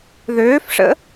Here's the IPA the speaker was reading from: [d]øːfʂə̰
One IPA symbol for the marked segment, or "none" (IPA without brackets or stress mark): ð